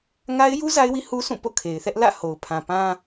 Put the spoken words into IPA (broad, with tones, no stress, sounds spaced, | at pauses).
ŋ a˦ ɪ̯ j u˦ z a˦ ɪ̯ w i˦ h u˦ s ũ˦˨ p o̰˦˨ kʰ e˨ ɪ̯ θ ɛ˦ ʔ l ä̰˦˨ h o˨ ʊ̯ pʰ ã˨ p ã˦